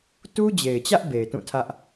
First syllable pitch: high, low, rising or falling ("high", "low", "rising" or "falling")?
high